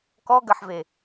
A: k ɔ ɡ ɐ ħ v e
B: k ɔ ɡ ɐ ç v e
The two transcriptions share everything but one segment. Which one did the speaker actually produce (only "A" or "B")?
A